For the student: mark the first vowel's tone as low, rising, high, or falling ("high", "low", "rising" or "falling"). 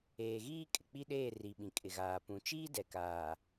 low